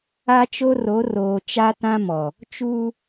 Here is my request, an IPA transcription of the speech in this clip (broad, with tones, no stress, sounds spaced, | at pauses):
a˦ t͡ʃ o˦ r o˨˦ r oː˨ t͡ʃ a˦ t ã˦ m ɔ˨ | t͡ʃ uː˦